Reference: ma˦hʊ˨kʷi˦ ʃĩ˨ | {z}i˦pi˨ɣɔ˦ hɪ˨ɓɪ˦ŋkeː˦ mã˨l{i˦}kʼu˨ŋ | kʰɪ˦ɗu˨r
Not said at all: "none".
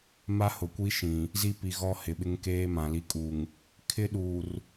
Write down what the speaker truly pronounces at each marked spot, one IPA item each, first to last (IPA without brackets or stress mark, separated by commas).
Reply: z, i˦